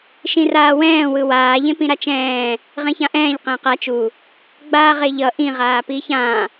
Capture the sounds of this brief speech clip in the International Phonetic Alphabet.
ʃ ĩ r aː w ɛ̃ː w ɯ w aː ʎ ẽ p ĩ ɾ a t͡ʃ ɛ̃ː | ʁ ẽ ç ã ʔ ɛ̃ː ʎ q ɛ̃ː q a t͡ʃ u | ɡ͡b aː ʁ e ʎ ʌ ʔ ĩ ʁ aː p iː ç ã

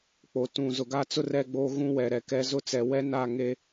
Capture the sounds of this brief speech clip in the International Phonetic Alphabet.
k͡p o˨ t ũ˨ z ʊ˨ ɡ a˦ t͡s ʊ˦ r ɛ˦˨ ɡ͡b oː˦ ɣ ũ˦ w ɛ˨ ɾ ɛ˨ k ɛ˦ z ʊ˦ t͡s ɛ˨ w ɛ˦ n a˦˨ ŋ e˦

